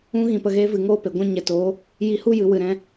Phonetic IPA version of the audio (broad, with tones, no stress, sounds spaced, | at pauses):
ũ˦ ɣ ĩ˨ p ə˨ ɣ eː˧ v ɨ˨˦ ŋ oː˦ p e˨ ɡʷ ɛ̃˦ ɲ ɛ˨ t oː˨˦ | j i˧ h u˦ j ɨ˨ w ɨ˨ ɾ ɛ̃˧